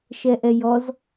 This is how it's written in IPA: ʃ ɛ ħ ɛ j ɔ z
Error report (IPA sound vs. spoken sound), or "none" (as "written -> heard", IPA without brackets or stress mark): ħ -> ʔ